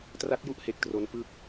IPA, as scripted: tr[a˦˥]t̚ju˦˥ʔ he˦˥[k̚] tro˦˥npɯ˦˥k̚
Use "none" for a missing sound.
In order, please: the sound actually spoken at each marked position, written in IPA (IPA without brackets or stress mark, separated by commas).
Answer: a˦˥, k̚